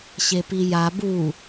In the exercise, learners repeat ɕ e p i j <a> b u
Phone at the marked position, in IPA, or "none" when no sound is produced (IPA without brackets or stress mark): a